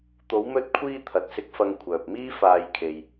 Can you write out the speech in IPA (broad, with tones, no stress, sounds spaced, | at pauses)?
t̪ o˨˧ w m ɵ˧ t̚ kʷʰ iː˧ t̪ʰ ɐ˨ t̚ s ɪ˧ k̚ f ɐ˧ ŋ kʷʰ œː˨ p̚ m iː˥ f aː˧ j kʰ e˨ j